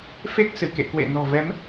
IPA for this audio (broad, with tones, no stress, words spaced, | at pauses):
fe˦˥k̚sɨ˧˩kḛ˧˨kwḛ˧˨ nɔ̤˨˩vɛ˨˦m